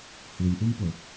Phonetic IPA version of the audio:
h u lʲ ʔ u m p o

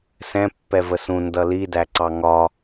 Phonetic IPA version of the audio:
s ɛ̃ pː ɛ v ə s ũ n d ʌ l i d æ ǀ ɑ ŋ ɒ

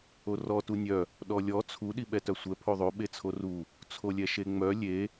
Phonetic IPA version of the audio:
o r ɔ t u nʲ œ | ɗ ɔ lʲ ɔ t͡sʰ u ɗ i ɓ ɛ t œ sʷ ɛ pʰ o ðˤ o ɓ e t͡sʰ o r u | t͡sʰ o lʲ ɛ ʃ e ŋ͡m œ lʲ e

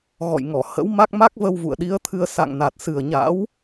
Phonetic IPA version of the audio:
ɣ ɔ̰˧˨ j ŋ ɔ˧˩ h ə̰˧˥ w m a˦˥ k̚ m a˦˥ k̚ v ə˧ w v ṵ˧˨ ə̯ ɗ i˨˦ ə̯ t̪ʰ ɨ˧ ə̯ s a̰˧˨ ŋ n a˨˩ t̚ s ɨ˨˩ ə̯ ɲ a̰˧˥ w

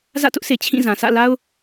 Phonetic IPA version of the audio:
z ä̰˦˨ t ʊ˦ ʔ s e˨ t͡ɕʰ ĩ˦˨ z ã˨ sʰ ä̰˦˨ l a˦ ʊ̯

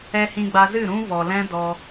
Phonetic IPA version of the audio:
ɛ˧ h ĩ˧ ɡ͡b a˧ z ɨ˦˨ ɾ ũ˦ v ɔ˧ l ɛ̃˦ d ɔ˧

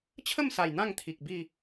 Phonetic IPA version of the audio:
t͡ɕʰ ə˥˧ m s a˨˩ j n̪ ã˥˧ ŋ t̪ʰ i˨ k̚ b i˥˧

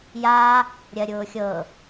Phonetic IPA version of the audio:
j aː | ɾʲ ɜ ɾʲ ʊː xʲ ɤː

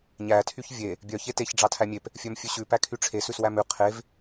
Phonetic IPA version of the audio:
ɲ æ tʰ y ç vʲ e | bʲ œ ç e t e ç ɖ͡ʐ ɑ tʰ æ mʲ e p | fʲ œ m fʲ ʉ ɕ ʉ p æ kʰ y ʈ͡ʂʰ e s ʉ s w æ m ʉ qʰ e v

